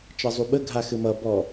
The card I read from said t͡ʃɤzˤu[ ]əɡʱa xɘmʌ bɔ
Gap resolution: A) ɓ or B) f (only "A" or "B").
A